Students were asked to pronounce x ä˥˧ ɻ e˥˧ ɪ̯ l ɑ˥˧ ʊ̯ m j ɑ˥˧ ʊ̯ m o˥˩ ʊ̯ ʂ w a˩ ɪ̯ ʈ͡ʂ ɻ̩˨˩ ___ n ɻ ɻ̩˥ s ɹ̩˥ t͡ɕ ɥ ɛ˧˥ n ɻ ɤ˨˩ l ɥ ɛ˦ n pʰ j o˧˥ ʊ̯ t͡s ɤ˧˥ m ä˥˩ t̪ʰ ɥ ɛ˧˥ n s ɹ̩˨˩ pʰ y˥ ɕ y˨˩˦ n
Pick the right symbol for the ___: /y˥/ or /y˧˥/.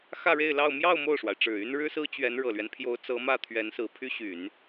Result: y˥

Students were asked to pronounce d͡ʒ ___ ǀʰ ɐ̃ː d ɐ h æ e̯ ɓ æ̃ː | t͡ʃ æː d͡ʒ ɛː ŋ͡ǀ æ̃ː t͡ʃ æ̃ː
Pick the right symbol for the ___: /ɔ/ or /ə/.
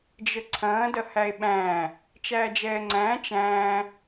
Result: ə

